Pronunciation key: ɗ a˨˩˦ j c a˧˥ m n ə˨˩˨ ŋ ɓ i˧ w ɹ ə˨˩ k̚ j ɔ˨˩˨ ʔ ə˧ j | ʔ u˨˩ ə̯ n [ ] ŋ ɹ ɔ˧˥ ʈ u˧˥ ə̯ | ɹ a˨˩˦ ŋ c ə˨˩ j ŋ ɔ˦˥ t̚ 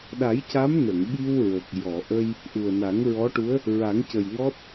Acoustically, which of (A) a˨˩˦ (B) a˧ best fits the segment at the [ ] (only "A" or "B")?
A